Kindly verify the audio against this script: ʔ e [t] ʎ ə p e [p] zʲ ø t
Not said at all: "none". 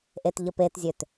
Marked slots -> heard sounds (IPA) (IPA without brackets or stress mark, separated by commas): t, t